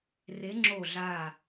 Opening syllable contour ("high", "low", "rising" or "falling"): rising